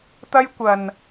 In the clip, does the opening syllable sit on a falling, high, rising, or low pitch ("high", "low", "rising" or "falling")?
high